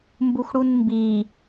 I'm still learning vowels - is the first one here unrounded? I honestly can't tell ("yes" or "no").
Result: no